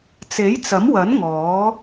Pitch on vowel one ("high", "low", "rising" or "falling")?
rising